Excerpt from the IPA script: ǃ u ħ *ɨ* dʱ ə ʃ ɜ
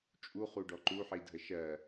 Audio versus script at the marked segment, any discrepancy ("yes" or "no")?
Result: yes